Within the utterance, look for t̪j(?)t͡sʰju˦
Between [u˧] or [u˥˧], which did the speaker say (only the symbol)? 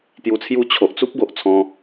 u˧